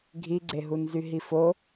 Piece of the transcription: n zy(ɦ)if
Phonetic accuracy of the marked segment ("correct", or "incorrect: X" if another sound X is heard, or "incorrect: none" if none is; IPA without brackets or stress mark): correct